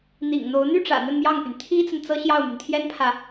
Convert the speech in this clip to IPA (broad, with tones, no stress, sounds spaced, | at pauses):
n̪ ḭ˨˩ ŋ n̪ o˧˥ ʊ̯ n̪ y˥˩ ʈ͡ʂ ä̰˨˩ n̪ ə˥˧ n m j ɑ˥˩ ŋ p y˩ n t̪ʰ i˥ t͡s ə˨ n t͡s ɤ˥ ɕ j ɑ˥˩ ʊ̯ m y˩ n t̪ʰ j ɛ˥ n pʰ ä˨